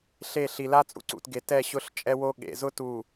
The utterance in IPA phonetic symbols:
ɬ e˦˨ ɬ i˨ l a˦ t͡sʼ ṵ˦ ǀ ṵ˨ t ɡ e˨ t ɛ˦˨ ɕ ʊ˦ ɬ t͡ʃʼ ɛ˦ w o˦ ɠ ḛ˨ z ʊ˦ t u˨

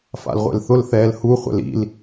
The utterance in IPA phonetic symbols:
f a̰ l ʁʷ ḛ l θ ʊ l θ ɛː l h u χʷ ɛ̰ l ḭ l

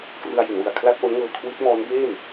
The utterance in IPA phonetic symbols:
k r ɯ˧ a̯ j i˩˦ n w ɯ˨˩ a̯ kʰ l a˥˩ t̚ ʔ o˦˥ n ŋ ɤː˧ kʰ w i˦˥ t̚ m ɔː˦˥ n b eː˥˩ m

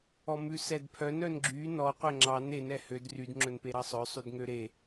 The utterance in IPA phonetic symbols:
ɔ m ʉ s ɛ d pʰ œ n œ n ɡ͡ǁ y n ɔ qʷ ɛ ŋ͡ǁ ɑ n e n ɛ h ø d r y d ŋ͡ǁ ɵ n p e ɾ ɑ sˤ œ sˤ ʉ d ŋ ø ɾ e

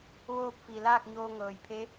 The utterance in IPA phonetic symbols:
ʋ oː˥˨ p̚ f i˩ l aː˥˨ k̚ ɲ oː˧ ŋ ɤː˩ j pʰ e˧˥

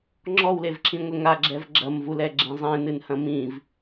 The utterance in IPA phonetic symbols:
ŋ͡ǁ ɔ w l e v ǁ ĩ ŋʷ ɛ ŋ a ɡ͡ǁ ɛ v ɡ͡ǁ ɐ m v u l ɛ ɡ͡ǁ ẽ zˤ ẽ n ɨ n h ɐ̃ m ĩ v

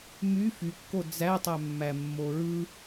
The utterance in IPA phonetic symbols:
m y f y kː o d͡z æ tˤ æ mː æ mː o ɹ ɯ

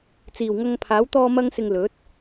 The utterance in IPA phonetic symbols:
t͡s iː˨˩ w ŋ ɐ˧ ŋ pʰ aː˨˥ w t̪ ɔː˧ m ɐ˥ ŋ s ɪ˧ ŋ l ɵ˨˥ t̚

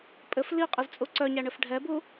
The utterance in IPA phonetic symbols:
pʼ ɘ f l i qʼ i z t͡sʼ u ǀ œ ɲ æ ɳ ɘ f ɖʱ ɛ b u

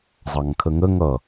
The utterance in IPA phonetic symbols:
zˤ ɑ ŋ kʰ ə ŋ ə ŋ ʌ

